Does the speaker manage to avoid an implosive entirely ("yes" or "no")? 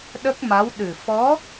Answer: no